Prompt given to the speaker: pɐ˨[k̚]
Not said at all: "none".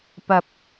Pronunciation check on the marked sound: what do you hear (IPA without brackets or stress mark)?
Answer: p̚